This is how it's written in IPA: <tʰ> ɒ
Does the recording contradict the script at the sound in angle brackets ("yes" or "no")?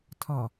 no